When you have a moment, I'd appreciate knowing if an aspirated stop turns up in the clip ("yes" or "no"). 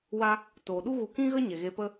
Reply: no